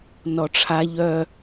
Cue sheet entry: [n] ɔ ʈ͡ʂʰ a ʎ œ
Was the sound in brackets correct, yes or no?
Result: yes